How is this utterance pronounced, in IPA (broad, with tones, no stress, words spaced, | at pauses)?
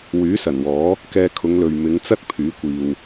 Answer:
wyː˨˥sɐ˨˩nwɔː˨˥ | kɛː˧kʰʊ˨˧ŋlɵ˨ɥ mɪ˨˧ŋt͡sɐ˥t̚ pʰyː˨˥kʷiː˨w